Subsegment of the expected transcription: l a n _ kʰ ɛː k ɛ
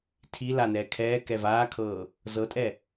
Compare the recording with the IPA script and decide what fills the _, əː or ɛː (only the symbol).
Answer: ɛː